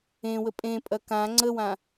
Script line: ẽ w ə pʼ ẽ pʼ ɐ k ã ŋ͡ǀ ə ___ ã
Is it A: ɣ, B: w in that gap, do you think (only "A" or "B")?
B